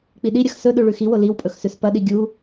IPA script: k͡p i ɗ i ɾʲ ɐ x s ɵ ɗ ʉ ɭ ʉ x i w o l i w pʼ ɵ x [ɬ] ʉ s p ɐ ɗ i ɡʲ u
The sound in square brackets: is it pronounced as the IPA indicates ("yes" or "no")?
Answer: no